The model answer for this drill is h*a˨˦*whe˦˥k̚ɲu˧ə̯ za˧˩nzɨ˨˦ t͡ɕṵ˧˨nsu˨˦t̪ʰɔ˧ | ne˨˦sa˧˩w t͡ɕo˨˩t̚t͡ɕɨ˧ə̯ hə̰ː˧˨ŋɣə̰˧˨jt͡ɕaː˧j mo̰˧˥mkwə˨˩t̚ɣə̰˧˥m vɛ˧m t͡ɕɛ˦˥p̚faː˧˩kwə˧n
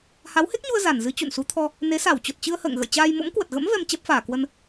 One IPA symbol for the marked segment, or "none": a˨˦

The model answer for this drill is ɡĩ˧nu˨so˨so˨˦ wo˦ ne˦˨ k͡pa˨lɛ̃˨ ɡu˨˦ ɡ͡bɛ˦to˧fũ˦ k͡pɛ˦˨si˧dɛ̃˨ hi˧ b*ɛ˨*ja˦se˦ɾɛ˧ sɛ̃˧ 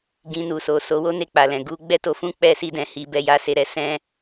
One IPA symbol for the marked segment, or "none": ɛ˦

